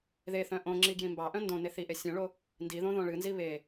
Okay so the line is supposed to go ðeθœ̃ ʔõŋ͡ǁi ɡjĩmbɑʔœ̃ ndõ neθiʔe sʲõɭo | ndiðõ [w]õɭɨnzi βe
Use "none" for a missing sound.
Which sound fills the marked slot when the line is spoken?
ð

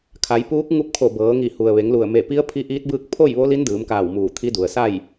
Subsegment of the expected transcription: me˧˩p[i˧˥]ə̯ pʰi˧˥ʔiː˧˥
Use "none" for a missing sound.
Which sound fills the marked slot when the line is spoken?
i˧˥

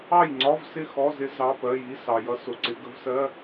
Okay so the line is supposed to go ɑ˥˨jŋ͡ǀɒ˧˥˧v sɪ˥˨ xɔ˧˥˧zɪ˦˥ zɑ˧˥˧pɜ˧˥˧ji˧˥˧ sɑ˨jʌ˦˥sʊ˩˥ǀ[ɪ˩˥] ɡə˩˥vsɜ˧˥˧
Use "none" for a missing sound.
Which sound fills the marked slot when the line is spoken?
ɪ˩˥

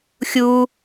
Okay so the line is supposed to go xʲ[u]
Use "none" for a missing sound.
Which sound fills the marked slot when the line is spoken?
u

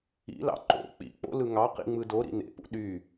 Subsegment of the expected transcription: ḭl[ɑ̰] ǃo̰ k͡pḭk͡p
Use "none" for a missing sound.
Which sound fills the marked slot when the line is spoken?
ɑ̰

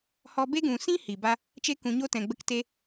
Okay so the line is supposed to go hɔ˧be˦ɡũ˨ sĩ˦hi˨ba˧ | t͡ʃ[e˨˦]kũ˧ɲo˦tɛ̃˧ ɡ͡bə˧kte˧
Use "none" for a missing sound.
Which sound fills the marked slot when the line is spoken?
e˦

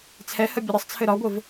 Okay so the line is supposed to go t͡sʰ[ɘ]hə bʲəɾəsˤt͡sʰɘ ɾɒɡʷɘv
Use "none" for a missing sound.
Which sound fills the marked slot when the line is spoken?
ɛ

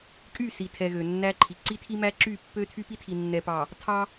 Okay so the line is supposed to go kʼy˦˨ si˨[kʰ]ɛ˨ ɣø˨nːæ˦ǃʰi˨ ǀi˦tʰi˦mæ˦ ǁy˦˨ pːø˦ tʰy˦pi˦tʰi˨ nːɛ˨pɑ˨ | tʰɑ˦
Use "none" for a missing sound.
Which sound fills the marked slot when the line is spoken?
tʰ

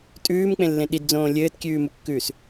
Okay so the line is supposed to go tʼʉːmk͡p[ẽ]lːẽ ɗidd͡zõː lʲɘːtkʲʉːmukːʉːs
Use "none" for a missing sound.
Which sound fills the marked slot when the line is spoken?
ẽ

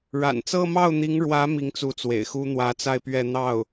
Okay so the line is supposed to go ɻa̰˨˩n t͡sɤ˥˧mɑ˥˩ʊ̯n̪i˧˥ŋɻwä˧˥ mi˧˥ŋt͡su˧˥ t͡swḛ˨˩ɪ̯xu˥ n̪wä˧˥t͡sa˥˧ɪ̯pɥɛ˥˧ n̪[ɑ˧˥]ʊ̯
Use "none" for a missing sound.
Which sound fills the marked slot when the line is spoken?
ɑ˥˩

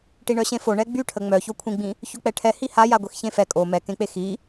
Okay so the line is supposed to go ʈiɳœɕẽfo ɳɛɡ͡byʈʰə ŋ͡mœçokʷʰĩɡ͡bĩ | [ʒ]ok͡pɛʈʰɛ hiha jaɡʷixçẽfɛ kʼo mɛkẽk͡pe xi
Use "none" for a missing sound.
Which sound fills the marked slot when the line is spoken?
ç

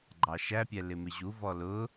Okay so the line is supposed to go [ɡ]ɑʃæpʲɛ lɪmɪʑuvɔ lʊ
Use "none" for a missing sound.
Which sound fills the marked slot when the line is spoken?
ɡ͡ǃ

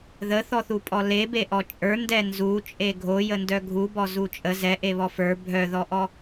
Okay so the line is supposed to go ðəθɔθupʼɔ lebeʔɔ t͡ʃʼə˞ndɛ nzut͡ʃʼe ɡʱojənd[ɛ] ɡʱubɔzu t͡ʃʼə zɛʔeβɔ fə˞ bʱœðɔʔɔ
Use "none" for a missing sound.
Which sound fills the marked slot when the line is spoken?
œ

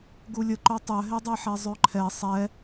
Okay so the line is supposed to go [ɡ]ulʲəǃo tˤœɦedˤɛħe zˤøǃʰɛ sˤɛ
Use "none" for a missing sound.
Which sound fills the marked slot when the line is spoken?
ɡ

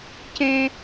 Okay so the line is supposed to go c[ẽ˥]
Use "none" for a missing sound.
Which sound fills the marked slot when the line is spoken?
ẽ˥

